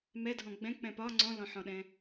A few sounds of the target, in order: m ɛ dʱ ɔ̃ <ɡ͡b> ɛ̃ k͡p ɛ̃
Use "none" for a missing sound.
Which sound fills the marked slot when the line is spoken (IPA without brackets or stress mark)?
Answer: ɡ͡b